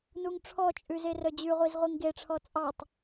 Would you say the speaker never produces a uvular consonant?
no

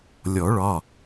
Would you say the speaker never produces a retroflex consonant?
no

